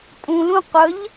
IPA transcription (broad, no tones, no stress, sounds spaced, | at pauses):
tʼ ũ l ũ qʷ ə ʎ